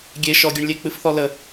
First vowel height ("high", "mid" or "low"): mid